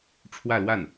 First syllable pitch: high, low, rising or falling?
falling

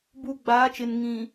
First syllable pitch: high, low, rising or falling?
low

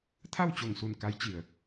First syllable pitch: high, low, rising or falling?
falling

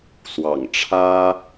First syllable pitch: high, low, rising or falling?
low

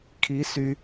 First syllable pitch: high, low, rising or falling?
rising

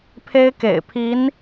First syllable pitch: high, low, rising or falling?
high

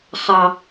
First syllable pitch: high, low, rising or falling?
high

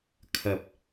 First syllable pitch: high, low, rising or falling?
rising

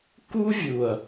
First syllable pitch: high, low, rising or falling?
high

